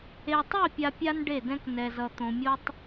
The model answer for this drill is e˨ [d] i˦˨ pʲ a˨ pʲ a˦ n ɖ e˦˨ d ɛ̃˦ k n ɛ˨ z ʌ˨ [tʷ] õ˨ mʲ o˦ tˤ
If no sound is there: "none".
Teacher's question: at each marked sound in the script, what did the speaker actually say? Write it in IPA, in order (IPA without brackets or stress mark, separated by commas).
tˤ, t̪